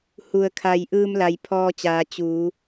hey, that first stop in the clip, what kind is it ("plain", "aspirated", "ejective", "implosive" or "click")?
aspirated